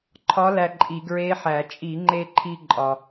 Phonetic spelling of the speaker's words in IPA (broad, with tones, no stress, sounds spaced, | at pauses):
ǃʰ ɒ˧˥ l æ˧ ǃʼ i˧˩˧ ɡ ɹ e˧˥ ħ æ˧˩˧ t͡ʃʼ i˧˩˧ ŋ͡ǃ e˧ ǃʰ i˧ ǃʼ ɒ˧